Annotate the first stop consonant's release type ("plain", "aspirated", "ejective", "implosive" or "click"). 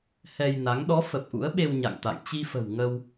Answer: implosive